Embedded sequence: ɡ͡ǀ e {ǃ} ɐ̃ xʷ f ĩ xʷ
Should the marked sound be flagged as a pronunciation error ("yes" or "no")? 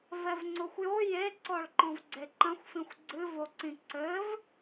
no